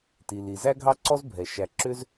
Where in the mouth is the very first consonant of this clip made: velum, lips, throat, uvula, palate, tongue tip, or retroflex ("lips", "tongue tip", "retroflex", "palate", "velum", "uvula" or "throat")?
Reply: tongue tip